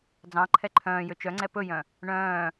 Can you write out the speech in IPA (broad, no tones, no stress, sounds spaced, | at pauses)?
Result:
d͡z ɑ̃ ǃʰ ɛ ǃʰ œ̃ː j ø t͡ʃ œ ŋ͡ǀ ɛ p ɵ j œ̃ | ɳ œ̃ː